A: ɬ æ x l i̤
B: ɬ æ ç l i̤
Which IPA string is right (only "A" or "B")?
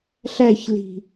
B